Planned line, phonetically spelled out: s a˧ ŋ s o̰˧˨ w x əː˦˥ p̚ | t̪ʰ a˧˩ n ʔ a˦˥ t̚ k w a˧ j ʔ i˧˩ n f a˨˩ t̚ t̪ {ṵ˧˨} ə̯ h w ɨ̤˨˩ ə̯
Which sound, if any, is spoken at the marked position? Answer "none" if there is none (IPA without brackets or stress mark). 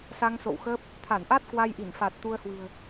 u˧